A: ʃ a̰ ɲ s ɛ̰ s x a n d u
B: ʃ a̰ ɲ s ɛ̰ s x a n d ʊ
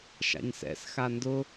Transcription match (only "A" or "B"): B